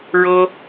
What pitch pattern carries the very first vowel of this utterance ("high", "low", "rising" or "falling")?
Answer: high